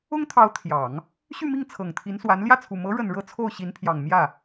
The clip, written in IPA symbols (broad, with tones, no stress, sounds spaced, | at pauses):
ʊ˥ ŋ t̪ʰ ɑ˧˥ ʊ̯ t̪ʰ j ɑ˨˩˦ ŋ | ɕ y˥˧ m i˥˩ ŋ t͡sʰ ɤ˨˩ ŋ t̪ʰ i˧˥ n s w a˧˥ n l j ä˥˩ t͡sʰ u˨˩ m ɤ˧˥ ɻ ə˨˩ n ɻ ɤ˥˧ t͡sʰ o˥˩ ʊ̯ ɕ i˧˥ n pʰ j ɑ˨˩ ŋ m j ä˥˩